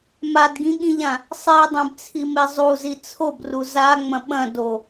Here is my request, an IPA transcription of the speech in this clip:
m a d ɡ ĩ ɠ ĩ ʎ ã | sˤ e dˤ ẽ b t͡sʰ i m e zˤ u z i t͡sʰ o b r u z a ŋ͡m ɐ̃ ɓ ɐ̃ d o

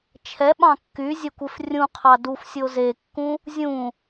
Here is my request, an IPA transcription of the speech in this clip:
t͡ʃʰ ɛ ɓ ɑ̃ kː y zʲ ə kʷ e f rʲ ũ qʰ ɑ d u f sʲ o z e kː ũ | zʲ ũ

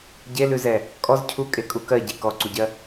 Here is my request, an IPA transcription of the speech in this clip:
ɟ e l ʉ z ɛ | kʼ ɔ z cʰ u kʼ e kʼ u k ɜ ɟ i k ɔ ǀ u ɟ ɜ

